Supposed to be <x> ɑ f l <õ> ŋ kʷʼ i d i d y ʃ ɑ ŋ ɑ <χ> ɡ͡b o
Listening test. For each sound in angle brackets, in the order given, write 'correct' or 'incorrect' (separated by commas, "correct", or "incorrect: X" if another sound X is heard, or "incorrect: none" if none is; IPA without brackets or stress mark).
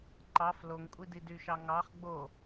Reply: incorrect: ǃ, incorrect: o, correct